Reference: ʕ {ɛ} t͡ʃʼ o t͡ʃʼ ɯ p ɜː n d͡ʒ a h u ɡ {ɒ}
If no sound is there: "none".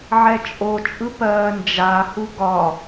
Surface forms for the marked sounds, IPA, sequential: ɛ, ɒ

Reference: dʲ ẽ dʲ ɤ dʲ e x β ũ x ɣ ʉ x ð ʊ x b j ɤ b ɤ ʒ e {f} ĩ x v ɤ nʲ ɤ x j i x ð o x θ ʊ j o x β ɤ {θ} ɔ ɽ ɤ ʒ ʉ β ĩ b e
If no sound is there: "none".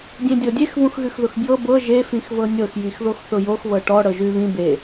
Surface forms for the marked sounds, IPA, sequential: f, ʈ

